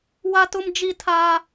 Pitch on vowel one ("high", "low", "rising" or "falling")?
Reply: high